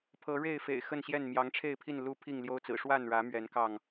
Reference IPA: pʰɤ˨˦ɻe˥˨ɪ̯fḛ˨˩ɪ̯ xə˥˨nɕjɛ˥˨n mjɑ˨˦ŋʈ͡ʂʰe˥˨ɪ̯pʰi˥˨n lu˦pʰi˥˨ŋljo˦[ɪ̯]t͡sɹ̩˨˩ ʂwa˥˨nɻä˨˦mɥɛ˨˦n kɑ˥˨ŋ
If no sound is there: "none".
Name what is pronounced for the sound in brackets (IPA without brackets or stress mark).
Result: ʊ̯